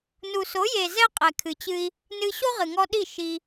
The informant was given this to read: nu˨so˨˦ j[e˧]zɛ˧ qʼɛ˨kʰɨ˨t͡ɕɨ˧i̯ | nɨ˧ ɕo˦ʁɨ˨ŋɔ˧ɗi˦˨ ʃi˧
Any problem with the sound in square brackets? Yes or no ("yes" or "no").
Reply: yes